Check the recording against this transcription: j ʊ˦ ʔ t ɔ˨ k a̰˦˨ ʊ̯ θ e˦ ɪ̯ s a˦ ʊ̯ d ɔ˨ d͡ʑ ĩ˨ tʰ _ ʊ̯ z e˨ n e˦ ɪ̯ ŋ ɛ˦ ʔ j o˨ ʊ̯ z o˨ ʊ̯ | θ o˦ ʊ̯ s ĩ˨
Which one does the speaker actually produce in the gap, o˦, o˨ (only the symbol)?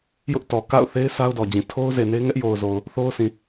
o˦